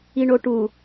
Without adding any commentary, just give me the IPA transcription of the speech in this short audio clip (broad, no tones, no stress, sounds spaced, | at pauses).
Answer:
i ɳ o ʈ u